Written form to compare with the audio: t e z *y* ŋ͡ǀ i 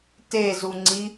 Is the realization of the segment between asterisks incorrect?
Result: yes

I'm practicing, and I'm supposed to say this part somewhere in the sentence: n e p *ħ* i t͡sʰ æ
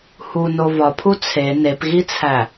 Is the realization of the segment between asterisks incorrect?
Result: yes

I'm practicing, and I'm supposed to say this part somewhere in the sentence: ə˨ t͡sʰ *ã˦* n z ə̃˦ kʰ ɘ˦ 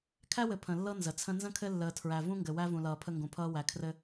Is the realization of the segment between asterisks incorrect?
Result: yes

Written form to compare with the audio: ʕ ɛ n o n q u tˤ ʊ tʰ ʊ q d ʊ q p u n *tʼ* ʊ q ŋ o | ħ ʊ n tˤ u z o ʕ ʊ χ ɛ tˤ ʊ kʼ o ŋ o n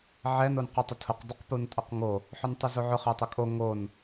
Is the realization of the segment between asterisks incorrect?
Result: no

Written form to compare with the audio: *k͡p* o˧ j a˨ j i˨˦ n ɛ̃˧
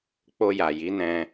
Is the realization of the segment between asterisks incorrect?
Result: no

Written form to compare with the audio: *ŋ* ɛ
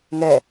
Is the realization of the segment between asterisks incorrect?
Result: no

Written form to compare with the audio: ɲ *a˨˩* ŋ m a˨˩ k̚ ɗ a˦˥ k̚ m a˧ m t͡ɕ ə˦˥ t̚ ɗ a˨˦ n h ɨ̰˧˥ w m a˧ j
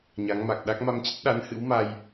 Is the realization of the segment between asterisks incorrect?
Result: yes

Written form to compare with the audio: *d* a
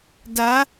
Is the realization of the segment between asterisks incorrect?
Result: no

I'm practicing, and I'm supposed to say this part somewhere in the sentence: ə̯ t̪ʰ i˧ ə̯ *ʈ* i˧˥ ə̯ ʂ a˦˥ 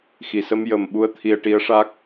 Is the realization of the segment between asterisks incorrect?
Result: no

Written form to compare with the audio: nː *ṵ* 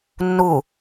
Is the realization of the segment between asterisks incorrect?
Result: yes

